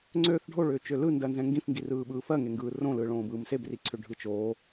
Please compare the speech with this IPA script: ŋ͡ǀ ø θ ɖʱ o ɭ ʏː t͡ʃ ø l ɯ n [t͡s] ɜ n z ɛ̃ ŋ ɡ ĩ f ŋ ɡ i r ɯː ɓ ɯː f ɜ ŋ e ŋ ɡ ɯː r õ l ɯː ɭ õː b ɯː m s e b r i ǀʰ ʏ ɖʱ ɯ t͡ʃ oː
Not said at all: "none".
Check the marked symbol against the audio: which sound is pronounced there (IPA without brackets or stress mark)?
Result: d